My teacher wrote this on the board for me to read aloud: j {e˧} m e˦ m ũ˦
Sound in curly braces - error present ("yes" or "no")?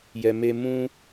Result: yes